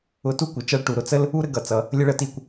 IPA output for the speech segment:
ʊ˧ t u˥ kʷ ɪ˩˧ t͡ʃ ʌ˧˥ ɭ ʈ u˩ ɾ ʊ˥ t͡s ə˥ l | u˥ ɾ ə˥ ɡ ʌ˩˧ t͡s ʌ˩˧ | lʲ ə˥ ɭ ə˧˥ t i˧ kʷ

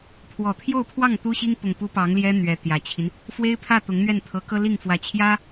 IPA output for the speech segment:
pʰ w ɔ˨˩ t̪ʰ j o˥˧ ʊ̯ pʰ w ɑ˥˩ ŋ t̪ u˥ ɕ i˥ ŋ p ʊ˨˩ ŋ p u˧˥ p ɑ˧˥ ŋ l j ɛ˥ n̪ ɥ ɛ˧˥ t̪ j ä˨˩ t͡ɕʰ i˦ n | f w e˥ ɪ̯ pʰ ä˥˩ t̪ ʊ˧˥ ŋ n̪ ɥ ɛ˥˩ n t̪ʰ ɤ˧˥ k ɤ˥ l i˥˩ ŋ f w ä˧˥ t͡ɕʰ j ä˥

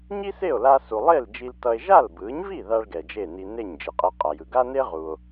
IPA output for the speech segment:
ɲ i˥ s e˥˩ o̯ l a˧ s u˩ lˠ e˥˩ l d͡ʒ i˧ l t ʌ˧ e̯ ʒ a˥˩ l b ɯ˩˥ ɲ v i˥˩ ð a˥ ɭ ɡ ɛ˩ d͡ʒ e˥˩ n i˧ n e˥˩ ɲ d͡ʒ i˩ qʼ ɛ˧ qʼ a˩ j ɯ˩ ɡ a˥ n e˥ ʁ u˩ o̯

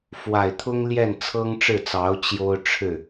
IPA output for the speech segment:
f w a˨˩ ɪ̯ t̪ʰ ʊ˥ ŋ l j ɛ˥˩ n t͡sʰ ɤ˥ ŋ ʈ͡ʂ ɻ̩˥˩ t͡s ɑ˧˥ ʊ̯ t͡ɕ j o˥ ʊ̯ ʈ͡ʂʰ ɻ̩˥˩

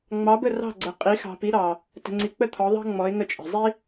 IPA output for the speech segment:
ŋ͡m ɑ˨˦ b ə˦˨ r ɑ̤˦˨ ɡ͡ǀ ə˨ qʼ i˨˦ x ɑ̤˨ p i˨˦ ɾ ɑ˨ | t ə̤˨ ŋ͡ǀ i˨ k͡p ə˦˨ t̪ʰ ɔ˨˦ ðˤ ɑ̤˥ ŋ͡m ɔ˨˦ ɪ̯ ŋ ə˦˨ t͡ʃʼ ə̤˨ zˤ i˥

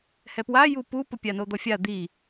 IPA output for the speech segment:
h ɛ p w a j u p u p o pʲ a n o d̪ ɔ fʲ a d̪ i

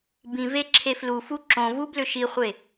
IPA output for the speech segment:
b ĩ v e ǁʰ e f l u f u ǁ õ v u b l ʏ ʃ i χʷ e

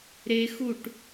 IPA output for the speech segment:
ɾ e x u ʈ

